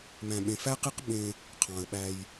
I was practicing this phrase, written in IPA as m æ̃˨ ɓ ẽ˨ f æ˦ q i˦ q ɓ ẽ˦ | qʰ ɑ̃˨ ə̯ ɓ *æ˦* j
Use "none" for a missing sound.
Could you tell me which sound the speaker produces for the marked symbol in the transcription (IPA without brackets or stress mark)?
æ˦